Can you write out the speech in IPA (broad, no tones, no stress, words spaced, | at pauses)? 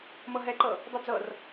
mɤɦɛǃɤ | dˤɤd͡zɤr